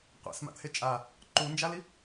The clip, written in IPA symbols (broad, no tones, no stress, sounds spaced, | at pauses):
qʷ a̰ s m a̰ t̪ʰ e t͡ʃʼ a | ǃ u n d͡ʒ a l i